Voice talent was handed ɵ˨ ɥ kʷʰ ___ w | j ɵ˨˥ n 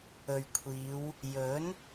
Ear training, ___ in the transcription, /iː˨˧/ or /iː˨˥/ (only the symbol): iː˨˧